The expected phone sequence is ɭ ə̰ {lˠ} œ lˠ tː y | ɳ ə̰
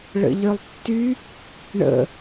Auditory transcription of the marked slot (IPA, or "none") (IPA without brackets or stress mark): ʎ